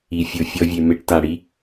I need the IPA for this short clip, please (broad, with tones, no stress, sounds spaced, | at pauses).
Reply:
i˨ fʲ o˨ fʲ ɔ˧ vʲ e˨ m e˧ ʈ t a˨ ɽ i˦